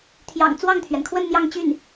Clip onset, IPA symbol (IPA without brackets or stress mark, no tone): t̪ʰ